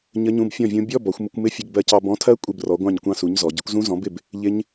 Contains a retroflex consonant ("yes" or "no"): no